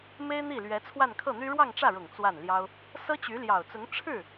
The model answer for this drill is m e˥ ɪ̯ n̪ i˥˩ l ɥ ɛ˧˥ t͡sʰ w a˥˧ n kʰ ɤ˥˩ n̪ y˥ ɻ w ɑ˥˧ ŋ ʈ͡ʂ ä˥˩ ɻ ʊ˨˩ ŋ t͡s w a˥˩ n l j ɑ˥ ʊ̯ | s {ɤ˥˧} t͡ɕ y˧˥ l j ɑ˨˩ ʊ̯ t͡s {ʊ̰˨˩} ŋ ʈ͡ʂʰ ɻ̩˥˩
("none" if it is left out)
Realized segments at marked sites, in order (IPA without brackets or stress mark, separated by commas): ɤ˥, ʊ˧˥